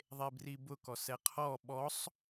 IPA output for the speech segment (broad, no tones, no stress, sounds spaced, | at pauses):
ðˤ e b r i b ʊ k ɔ s ɛ qʰ ɔ ɓ ɔ sˤ